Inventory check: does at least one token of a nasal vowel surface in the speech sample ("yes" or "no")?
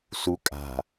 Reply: no